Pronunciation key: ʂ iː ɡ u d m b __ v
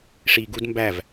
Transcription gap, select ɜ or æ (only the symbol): æ